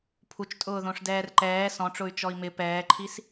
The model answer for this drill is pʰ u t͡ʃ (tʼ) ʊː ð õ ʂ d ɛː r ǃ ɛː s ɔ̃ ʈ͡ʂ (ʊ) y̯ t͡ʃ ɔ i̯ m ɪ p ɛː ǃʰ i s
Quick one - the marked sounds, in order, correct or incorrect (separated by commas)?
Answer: correct, correct